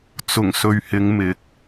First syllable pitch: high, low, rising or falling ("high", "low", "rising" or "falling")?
low